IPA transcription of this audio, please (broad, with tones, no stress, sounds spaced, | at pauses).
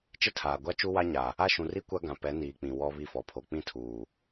t͡ʃ ɪ˦ tʰ aː˨ ɡʷ a˦ t͡ʃ u˦ w a˦ ɲ a˨ | a˦˨ ʃ ũ˨ r i˦ kʷ a˦ ɡ ã˨ p ɛ˨˦ n iː˨ k͡p ĩ˨ w ɔ˦ β i˦˨ f ɔ˨ pʰ o˨ k͡p ĩ˦ tʰ uː˨